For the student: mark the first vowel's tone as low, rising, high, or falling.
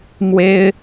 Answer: high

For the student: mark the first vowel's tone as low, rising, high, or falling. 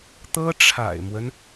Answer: high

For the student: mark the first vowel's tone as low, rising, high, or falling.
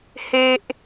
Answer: high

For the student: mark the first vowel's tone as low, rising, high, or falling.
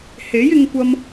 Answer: rising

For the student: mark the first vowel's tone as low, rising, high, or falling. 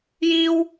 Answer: high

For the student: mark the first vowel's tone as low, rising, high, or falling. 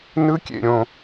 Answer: high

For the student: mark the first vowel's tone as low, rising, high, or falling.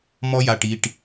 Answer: high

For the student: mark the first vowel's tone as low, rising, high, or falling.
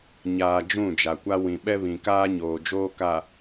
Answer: low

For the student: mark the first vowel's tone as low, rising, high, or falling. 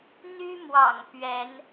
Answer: high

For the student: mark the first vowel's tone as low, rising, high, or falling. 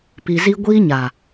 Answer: low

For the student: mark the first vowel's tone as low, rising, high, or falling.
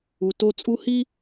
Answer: low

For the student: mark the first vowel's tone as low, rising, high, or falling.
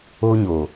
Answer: high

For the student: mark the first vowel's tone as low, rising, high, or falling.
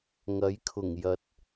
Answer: rising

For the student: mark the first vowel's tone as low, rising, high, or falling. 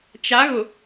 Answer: rising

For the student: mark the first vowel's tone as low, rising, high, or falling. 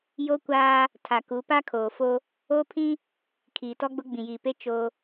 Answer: high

